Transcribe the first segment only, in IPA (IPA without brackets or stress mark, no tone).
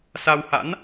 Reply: s